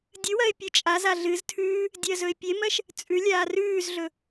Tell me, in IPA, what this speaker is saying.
dʲ ɨ w ɜ ɪ̯ pʲ ɨ t͡ʃʼ a z a ɮ ɨ z tʰ ʉː | dʲ ɜ z ɵ ɪ̯ pʲ e m ɜ ʃ | t͡sʼ ʉ lʲ aː r ʉː z ɮ ɵ

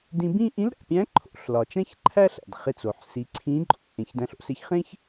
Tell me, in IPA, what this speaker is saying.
d ĩ˧ b ĩ˥ ʔ ĩ˧˥ l ɾ æ̰˩ pʲ æ̃˧˥ ǃʰ o̰˧˥ ɬ l ɒ˩ t͡ʃ æ̃˥ ç ǃʰ æ˥ ɬ æ̰˩ d χ e˧ t͡s o˩ ħ s i˩˧ ǀʰ ĩ˧˥ ǃʼ o̰˧ ʔ ẽ˩˧ ç d æ̃˧ ɬ o̰˥ s e˧˥ ç χ ẽ˥ ç

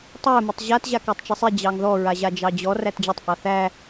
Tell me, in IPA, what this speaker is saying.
tˤ æ m ɛ tˤ ʑ a t ʑ a k ɑ tˤ t͡ʃ ɛ sˤ i d͡ʑ ɑ ŋ ð ɔ ɹ a ʑ a d͡ʒ ɑ d͡ʑ ɔ r æ t d͡ʑ œ tˤ ʔ ɑ θ æ

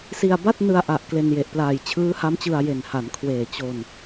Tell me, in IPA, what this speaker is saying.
s i˧ a̯ b a˥˩ t̚ n ɯ˧ a̯ ʔ a˨˩ ʔ k l e˧ n j e˨˩ ʔ p l aː˨˩ j t͡ɕʰ ɯː˦˥ h a˦˥ m t͡ɕ ɯ˧ a̯ j e˨˩ n h a˩˦ n kʰ w eː˨˩ t͡ɕ o˧ n

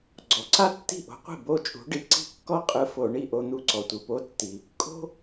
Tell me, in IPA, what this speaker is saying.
ɡ͡ǀ ɔ˩ ǀ a˥ tː i̤˥˩ ʔ o̤˨˥ qʷ i̤˥˩ b o˥˩ t͡ʃʼ ṳ˨˥ ɖ i˨˥ ǀ i̤˥ kː ɔ˥ qʼ ɯ˧ f o˧˩˧ ɳ i˥˩ ʔ o˧ n̪ u˧ ǀ ɔ˩ tʷ ɯ˩ p o˨˥ tː i˩ | kʼ o̤˥

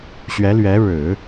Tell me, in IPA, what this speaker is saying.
ɕ ɥ ɛ˧˥ l ɥ ɛ˧˥ ɻ ɻ̩˨˩˦

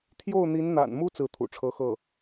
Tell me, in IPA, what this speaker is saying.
t̪ʰ j o˥˩ ʊ̯ n̪ i˧˥ n n̪ a̰˨˩ n m u˥ t͡s ɹ̩˥˩ t̪ʰ ṵ˨˩ ʈ͡ʂʰ ɤ˥ x ɤ˥˩

